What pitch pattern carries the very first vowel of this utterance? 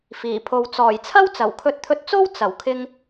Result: low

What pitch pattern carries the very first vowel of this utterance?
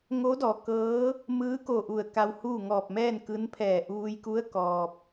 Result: rising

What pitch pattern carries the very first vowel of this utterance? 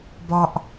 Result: low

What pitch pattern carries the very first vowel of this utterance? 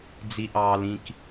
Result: high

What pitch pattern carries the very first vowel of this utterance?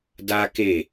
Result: high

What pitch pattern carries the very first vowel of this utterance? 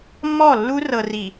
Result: falling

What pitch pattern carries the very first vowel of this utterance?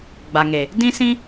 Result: low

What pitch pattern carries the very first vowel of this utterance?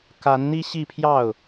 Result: rising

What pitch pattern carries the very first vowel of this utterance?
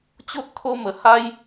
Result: high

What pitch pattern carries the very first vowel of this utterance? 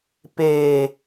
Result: low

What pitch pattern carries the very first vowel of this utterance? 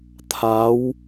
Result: rising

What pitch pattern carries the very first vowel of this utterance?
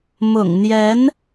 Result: low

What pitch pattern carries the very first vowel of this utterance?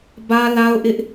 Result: high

